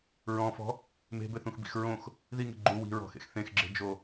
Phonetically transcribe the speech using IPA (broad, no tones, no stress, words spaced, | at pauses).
ɹɔ̃fɔ̤ | me̤bɘθũxbḭx ɹõx | ðiŋe̤ ɡ͡ǃu wi̤ɹɔ̤xḛx θẽxɡ͡ǁe̤d͡ʒo